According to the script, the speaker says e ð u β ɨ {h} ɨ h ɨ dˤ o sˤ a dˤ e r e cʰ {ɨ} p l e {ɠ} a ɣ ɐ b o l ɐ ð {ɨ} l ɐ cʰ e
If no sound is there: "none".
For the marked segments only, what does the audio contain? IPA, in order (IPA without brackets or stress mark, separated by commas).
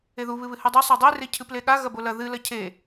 β, ɨ, ɠ, ɨ